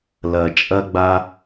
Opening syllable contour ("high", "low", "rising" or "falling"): low